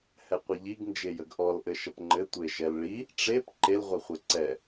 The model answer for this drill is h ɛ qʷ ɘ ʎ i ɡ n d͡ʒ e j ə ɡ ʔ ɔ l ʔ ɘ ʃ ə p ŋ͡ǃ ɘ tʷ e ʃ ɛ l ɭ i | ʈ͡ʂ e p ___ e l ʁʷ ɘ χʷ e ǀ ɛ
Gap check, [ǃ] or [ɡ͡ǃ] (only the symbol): ǃ